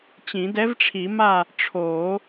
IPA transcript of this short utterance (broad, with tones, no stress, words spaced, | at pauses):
t͡ɕĩ˨˩˦dɛ˧˥vʈ͡ʂʰi˨˩˦ma˦˨ | ʈ͡ʂʰoː˨˩˦